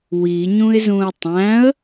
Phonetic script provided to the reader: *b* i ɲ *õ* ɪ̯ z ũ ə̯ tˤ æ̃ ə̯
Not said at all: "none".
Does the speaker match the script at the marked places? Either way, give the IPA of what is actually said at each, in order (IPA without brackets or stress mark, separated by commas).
w, ũ